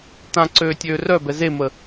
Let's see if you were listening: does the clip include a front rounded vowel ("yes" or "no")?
yes